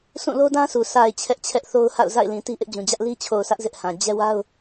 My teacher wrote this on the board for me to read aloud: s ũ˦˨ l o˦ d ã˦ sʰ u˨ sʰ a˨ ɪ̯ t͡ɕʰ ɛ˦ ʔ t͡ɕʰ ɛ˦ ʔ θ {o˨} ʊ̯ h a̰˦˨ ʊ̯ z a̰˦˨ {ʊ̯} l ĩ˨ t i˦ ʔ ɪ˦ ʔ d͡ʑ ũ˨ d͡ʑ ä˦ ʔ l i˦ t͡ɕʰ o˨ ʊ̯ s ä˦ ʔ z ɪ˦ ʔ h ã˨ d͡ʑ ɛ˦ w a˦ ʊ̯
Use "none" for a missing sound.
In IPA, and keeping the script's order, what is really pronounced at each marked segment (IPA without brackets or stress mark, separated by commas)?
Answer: o˦, ɪ̯